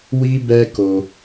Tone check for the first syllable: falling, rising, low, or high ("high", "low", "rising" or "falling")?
high